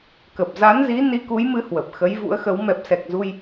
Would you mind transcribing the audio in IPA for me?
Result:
k ə˨˩ p̚ z a˨˦ n z i˨˦ n i˧ k u˨˦ j m ɨ˨˦ h w ə˨˩ p̚ x ə˨˦ j v ṵ˧˥ ə̯ x ə˨˦ w m ɛ˨˩ p̚ s ɛ˨˩ k̚ z u˧ j

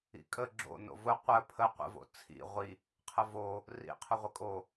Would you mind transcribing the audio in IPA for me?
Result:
ḭ kʼ ə ɡ͡ǁ o̰ n o̰ v ʊ qʷ ə pʰ ə qʷ ə̰ v o̰ t͡sʰ ḭ ʁʷ i | qʰ ə v o | r ḭ qʰ ʊ ʁʷ ə kʼ o

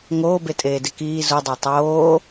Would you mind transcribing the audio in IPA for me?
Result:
ŋ oː b e tʼ eː d ɪ k iː z u dˤ a tˤ oː

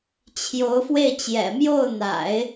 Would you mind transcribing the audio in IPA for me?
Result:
t͡ɕʰ j o˧˥ ʊ̯ f w e˥˩ ɪ̯ t͡ɕ j ɛ̰˨˩ m j o˥˩ ʊ̯ n̪ a̰˨˩˦ ɪ̯

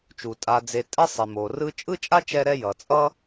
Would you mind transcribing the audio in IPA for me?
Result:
t͡ʃ u˩ tʼ a˨ d͡z e˨ tʼ ɛ˦ sˤ e˩ m o˩ r ɯ˦ t͡ʃʼ ɯ˥ t͡ʃʼ a˥ t͡ʃ ɛ˦ ɾ ɛ˦ j ʌ˨ t͡sʼ ʌ˥

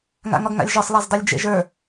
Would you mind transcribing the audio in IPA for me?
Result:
ŋ a̰ ŋ ɒ ɡ ŋ a̰ lʲ ʒ ɒ sˤ lˠ a z dˤ ɤ lʲ d͡ʒ ḛ ʒ ə˞

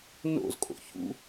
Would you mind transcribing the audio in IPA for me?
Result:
n o̰ z kʼ o̰ ç ṵ

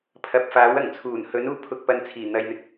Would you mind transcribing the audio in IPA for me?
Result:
pʰ ɐ˨ p̚ f aː˨˥ w ɐ˨˩ ŋ t͡sʰ uː˨˩ n h ɵ˨˥ n uː˧ pʰ ʊ˨ k̚ p ɐ˨˧ n t͡sʰ iː˨˩ n̪ ɐ˨ j n̪ ɪ˨ k̚

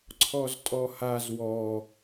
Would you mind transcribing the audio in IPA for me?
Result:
ǀʰ ɔ z tʼ ɔ h a z w ɔ

